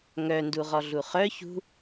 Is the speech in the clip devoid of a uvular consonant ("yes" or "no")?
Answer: no